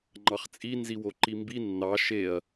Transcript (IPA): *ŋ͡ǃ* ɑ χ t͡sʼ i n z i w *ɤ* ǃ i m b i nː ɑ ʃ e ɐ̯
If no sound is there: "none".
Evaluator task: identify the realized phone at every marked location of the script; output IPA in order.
ŋ͡ǃ, o

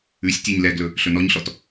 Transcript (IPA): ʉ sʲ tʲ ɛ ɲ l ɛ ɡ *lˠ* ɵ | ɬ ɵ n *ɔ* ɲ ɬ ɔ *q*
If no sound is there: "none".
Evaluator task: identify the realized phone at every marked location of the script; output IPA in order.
l, ɔ, t

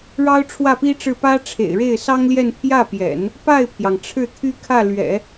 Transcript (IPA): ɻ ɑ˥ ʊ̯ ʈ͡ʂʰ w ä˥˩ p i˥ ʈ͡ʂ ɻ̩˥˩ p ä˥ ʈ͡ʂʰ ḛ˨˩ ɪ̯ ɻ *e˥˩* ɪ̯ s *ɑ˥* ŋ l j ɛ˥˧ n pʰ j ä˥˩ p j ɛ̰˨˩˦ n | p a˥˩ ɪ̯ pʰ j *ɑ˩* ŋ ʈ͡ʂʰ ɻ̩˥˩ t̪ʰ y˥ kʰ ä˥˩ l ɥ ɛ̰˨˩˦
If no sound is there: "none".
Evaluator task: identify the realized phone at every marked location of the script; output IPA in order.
e˥˩, ɑ˥, ɑ˩

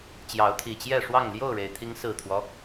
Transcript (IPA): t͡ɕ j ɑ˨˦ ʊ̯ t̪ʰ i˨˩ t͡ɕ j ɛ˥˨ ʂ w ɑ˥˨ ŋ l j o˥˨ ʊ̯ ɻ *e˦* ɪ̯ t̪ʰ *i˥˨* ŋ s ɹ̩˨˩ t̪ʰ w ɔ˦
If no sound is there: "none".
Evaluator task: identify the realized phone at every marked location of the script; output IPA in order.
e˩, i˨˦

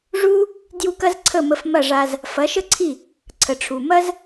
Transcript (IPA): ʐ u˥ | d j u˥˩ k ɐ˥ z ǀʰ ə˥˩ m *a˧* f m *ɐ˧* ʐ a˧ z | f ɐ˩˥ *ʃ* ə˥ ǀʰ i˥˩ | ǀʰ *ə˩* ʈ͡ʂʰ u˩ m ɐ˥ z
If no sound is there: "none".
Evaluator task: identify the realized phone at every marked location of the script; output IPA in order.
ə˧, ɐ˥˩, ʃ, ə˩

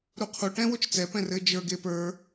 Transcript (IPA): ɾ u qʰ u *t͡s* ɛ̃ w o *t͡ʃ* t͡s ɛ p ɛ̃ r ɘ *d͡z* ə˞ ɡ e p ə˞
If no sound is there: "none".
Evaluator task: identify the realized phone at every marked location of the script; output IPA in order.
ʈ, t͡ʃ, d͡ʒ

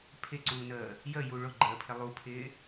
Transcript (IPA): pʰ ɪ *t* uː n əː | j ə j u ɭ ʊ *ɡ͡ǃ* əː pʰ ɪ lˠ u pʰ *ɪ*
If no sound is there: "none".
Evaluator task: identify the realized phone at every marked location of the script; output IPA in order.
ǀ, ɡ͡ǃ, ɪː

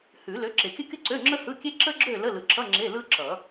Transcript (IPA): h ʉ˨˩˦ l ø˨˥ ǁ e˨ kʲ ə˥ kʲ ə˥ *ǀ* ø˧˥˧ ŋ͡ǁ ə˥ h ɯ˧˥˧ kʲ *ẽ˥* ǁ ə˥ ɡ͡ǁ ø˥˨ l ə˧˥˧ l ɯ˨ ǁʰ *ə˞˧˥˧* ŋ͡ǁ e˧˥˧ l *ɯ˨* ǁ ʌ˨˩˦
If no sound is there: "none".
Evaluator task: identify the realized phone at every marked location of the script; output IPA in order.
ǀ, e˥, ʌ˧˥˧, ɯ˥

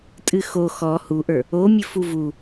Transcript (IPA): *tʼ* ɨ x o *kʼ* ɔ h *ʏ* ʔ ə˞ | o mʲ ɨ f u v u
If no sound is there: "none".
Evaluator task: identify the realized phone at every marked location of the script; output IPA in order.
tʼ, x, u

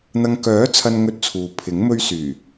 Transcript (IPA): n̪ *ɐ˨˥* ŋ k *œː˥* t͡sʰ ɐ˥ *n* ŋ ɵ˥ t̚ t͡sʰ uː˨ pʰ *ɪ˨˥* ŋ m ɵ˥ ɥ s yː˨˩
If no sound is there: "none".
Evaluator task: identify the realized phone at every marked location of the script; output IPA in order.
ɐ˧, œː˨˥, n, ɪ˨˥

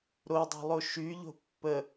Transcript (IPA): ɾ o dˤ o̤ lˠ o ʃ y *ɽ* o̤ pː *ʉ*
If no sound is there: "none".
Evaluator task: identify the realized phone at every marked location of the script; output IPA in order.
ʎ, ə

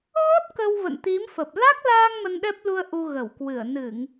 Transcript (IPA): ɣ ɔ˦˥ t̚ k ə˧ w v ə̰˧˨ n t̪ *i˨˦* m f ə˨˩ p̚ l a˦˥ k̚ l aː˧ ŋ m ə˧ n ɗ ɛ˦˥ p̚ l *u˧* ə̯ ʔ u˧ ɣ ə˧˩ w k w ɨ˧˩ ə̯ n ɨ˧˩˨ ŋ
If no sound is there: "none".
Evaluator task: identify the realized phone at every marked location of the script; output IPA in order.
i˨˦, u˧

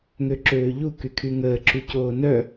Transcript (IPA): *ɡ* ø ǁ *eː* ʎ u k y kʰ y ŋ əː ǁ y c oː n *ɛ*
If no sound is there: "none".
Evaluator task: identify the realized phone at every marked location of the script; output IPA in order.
ŋ, øː, œ

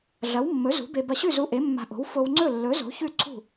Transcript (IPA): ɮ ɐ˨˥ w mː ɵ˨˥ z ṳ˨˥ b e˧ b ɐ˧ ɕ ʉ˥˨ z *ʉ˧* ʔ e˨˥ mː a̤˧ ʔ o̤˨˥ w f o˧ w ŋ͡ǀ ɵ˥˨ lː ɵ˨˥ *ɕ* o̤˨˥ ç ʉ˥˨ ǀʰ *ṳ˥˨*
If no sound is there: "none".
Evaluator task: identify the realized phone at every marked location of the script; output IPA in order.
u˧, z, ṳ˥˨

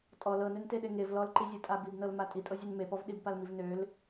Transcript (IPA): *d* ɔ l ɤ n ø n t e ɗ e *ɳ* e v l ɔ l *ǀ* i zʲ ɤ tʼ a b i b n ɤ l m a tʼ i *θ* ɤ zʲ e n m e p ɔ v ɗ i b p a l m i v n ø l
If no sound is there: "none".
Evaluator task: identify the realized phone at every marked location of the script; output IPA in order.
tʼ, ŋ, ǃ, tʼ

